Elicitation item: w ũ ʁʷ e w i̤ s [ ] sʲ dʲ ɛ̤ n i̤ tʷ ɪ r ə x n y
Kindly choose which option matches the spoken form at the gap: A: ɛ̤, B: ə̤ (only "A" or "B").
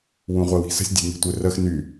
B